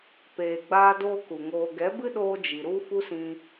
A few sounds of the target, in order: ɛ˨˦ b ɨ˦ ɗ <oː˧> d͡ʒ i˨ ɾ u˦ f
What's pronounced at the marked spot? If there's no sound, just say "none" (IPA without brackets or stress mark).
oː˧